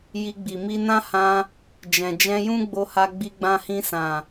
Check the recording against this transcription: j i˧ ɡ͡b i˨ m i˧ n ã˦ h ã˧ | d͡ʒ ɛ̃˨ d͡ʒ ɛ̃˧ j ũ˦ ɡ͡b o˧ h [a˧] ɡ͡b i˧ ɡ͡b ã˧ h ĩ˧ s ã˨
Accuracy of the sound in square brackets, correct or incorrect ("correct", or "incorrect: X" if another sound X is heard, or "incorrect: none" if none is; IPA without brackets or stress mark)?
correct